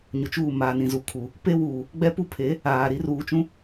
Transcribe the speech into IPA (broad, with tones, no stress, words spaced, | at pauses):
ɲʊ˨t͡ʃuː˦˨ maː˨nĩ˨zu˨ kʰu˨ | pe˦wuː˨ | ɡ͡bɛ˦pu˦pʰe˨˦ | aː˨ ɾi˦ ruː˨t͡ʃũ˦